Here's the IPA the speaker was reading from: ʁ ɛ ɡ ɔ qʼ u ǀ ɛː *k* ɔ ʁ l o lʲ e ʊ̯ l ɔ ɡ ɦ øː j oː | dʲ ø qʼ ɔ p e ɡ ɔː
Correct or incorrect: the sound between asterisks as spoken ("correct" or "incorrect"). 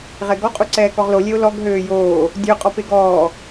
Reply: correct